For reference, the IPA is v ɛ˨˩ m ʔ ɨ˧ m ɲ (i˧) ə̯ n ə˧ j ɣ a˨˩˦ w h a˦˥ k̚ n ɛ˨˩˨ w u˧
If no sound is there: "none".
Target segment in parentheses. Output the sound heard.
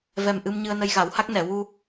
ɨ˧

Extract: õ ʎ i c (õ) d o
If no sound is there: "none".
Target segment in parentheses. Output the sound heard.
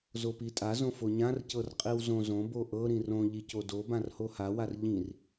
o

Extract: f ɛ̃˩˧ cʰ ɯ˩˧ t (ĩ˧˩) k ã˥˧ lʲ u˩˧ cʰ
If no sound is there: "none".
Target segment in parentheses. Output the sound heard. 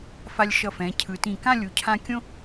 ĩ˧˩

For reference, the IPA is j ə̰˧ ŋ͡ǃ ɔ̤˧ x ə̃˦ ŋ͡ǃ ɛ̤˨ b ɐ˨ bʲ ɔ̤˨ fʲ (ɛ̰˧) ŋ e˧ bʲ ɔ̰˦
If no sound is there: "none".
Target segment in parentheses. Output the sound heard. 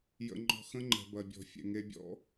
ɛ̰˨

